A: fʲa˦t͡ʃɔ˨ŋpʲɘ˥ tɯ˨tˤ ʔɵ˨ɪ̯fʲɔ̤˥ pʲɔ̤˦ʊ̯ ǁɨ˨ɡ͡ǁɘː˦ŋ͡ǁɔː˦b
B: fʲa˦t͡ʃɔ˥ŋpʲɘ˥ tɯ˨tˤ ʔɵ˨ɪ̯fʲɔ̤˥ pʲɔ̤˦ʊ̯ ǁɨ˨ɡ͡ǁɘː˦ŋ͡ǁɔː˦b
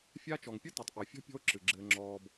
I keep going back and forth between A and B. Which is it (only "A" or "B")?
A